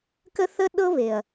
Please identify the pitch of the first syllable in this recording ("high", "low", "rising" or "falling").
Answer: high